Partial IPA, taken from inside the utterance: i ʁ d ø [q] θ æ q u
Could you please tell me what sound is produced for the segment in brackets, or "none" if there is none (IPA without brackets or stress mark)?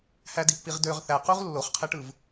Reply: ʁ